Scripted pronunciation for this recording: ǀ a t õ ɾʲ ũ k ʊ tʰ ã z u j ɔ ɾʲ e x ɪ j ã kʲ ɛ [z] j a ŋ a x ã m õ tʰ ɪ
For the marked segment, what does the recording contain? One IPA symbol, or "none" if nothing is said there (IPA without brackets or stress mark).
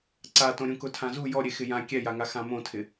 none